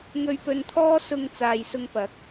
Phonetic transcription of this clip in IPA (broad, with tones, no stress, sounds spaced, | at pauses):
ŋ ɵ˧ ɥ p ɵ˧ n t̪ʰ ɔː˥ s ʊ˧ ŋ t͡s aː˨ j s ʊ˧ ŋ p ɐ˨˥ k̚